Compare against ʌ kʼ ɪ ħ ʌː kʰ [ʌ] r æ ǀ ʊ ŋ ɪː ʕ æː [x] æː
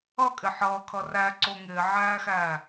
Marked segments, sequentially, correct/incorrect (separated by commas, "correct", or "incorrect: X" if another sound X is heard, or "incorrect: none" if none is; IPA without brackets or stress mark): correct, correct